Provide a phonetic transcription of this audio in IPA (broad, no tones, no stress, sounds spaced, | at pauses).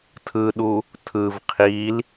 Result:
tʰ ɯ ɗ u | tʰ ɯ v qʰ i l